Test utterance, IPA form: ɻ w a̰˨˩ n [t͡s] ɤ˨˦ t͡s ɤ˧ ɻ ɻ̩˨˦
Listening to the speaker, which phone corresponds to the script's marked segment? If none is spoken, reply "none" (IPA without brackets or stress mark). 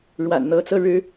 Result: n̪